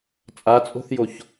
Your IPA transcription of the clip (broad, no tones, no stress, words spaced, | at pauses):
t͡sʼat͡sʼo̤θjoç